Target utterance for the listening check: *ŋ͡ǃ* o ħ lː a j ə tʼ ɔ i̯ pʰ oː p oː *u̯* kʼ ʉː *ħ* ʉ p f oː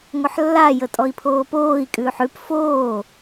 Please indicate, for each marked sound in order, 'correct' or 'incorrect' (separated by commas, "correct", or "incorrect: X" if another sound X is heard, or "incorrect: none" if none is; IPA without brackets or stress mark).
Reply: incorrect: ŋ, incorrect: i̯, correct